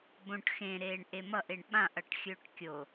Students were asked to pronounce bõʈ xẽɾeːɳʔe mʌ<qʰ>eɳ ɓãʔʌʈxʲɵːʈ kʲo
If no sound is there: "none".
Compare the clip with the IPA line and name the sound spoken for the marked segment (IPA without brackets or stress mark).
ʔ